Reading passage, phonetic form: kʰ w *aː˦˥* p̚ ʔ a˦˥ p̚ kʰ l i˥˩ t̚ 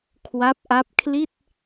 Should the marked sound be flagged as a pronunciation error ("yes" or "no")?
yes